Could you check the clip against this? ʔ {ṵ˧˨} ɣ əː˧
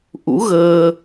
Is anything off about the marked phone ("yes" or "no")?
yes